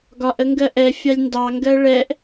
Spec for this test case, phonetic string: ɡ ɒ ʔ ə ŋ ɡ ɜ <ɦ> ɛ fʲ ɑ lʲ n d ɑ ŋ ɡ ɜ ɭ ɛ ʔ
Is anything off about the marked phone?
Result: yes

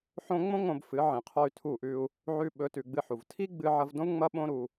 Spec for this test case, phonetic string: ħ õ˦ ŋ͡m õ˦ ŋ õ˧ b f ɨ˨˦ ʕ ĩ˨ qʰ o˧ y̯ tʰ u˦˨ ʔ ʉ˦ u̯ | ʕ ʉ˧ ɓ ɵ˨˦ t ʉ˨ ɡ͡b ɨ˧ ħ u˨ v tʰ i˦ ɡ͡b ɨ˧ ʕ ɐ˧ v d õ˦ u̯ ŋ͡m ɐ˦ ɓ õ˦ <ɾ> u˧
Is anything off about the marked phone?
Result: no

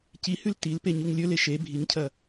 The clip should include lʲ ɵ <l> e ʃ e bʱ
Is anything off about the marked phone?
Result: no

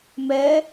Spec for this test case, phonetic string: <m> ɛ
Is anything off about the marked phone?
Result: no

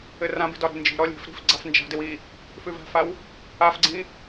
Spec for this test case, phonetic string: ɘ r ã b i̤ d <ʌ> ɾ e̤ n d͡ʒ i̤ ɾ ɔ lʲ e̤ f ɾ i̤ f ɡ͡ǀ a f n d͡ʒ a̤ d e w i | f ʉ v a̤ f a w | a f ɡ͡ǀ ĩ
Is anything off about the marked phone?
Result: yes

